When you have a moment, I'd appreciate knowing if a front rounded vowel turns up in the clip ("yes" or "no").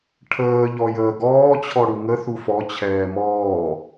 no